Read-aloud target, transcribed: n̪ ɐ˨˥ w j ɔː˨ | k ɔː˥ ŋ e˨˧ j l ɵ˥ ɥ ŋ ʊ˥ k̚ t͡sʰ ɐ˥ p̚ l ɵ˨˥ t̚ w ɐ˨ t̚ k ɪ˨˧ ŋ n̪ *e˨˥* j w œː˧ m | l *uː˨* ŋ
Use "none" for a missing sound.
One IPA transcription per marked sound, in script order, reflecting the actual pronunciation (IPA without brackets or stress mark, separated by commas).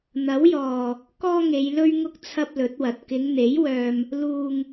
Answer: e˨˥, uː˨